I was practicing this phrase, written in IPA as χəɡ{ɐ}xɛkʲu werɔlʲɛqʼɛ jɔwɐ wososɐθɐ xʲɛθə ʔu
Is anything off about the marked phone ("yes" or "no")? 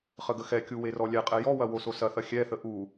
yes